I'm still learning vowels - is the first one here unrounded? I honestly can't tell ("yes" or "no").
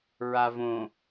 yes